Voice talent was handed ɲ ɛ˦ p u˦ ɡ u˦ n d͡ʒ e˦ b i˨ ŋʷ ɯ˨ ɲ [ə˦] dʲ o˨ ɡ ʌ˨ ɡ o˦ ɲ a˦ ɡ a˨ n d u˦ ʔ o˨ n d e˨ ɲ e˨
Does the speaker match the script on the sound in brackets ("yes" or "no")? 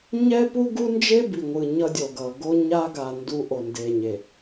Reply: no